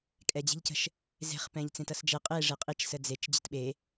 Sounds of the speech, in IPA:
kʼ ɛ d͡ʑ e̤ ʎ c ə̤ ʃ | z e̤ χ p ɛ̃ ʎ t͡s ẽ t ʌ s d͡ʒ ɛ qʼ e ʐ e qʼ i t͡ʃ s ə d͡z e t͡ʃ d͡ʑ ə̤ t ɓ e

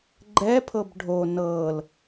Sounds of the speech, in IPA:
ɡ͡ǃ ɛ pʰ ɤ b ɖʱ o n ɤ l

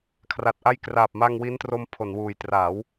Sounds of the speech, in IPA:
kʰ r a˨˩ t̚ ʔ a˦˥ j k r aː˨˩ p̚ m a˧ ŋ w i˦˥ n t r o˧ m pʰ o˩˦ n w uː˨˩ j t r a˩˦ w

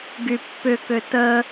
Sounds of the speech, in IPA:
ɡ y pː ʏ k ø t ə

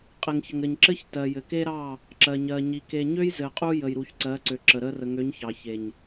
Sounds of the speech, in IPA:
qʼ e˨ ŋ ç ə˨ ŋ ɾ ɘ˨ ɲ ǁ ɘ˦ ç t ɜ˨ j ɘ˨ k e˦ ɾ ɑ˦˨ | ǁ ɜ˨ ɲ ɜ˨ ɲ i˨ k e˨ ɲ ø˦ j z ɘ˨ qʼ u˦ j ə˨ j ɾ u˨ ç ǀ ɜ˨˦ ǀ ø˨ ǁ ə˨ ɾ ə˦ r ə˨ ŋ ø˨˦ ɲ ç ɑ˨ ç e˨ ɲ

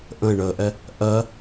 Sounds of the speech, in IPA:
ʔ ə̃ e̯ ɳ əː ʔ ɛ | ʔ ɜ

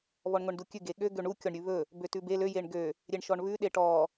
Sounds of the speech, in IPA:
β ɔ ɳ ŋʷ ɛ ɳ d u kʲ ʉ ɡ e ɠ ø ɡ ø ɳ u kʲ ɔ ɳ ɾʲ ʉ β ɵ | b ø t ʉ b e l ø j e ɳ ɡ ø | ɾʲ e ɳ ʃ ɔ ɳ β ʉ ɗ e ʈ ɔ

